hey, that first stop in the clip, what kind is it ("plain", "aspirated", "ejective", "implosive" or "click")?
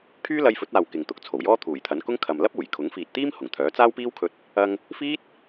aspirated